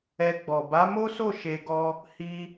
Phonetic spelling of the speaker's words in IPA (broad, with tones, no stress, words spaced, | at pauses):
ɛ˧ɡ͡bɔ˨ ba˨˦mo˦so˦˨ ʃe˧ɡɔ˦ | hi˧